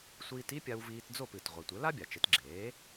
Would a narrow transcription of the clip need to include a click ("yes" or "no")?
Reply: yes